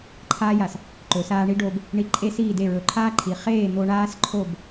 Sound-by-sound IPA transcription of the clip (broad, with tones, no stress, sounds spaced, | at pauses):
ǃʰ aː˦ j a˨ s | ǃ ɵ˨ s aː˧ ɳ i˦ ɖ oː˧ b | ɳ i˧ ǃʼ e˦ s iː˦˨ d e˦˨ ɹ ɵ˨˦ ǃʰ aː˦ ǃʰ iː˨ χ eː˦˨ n̪ o˧ ɳ aː˦ s ǃʰ o˦˨ b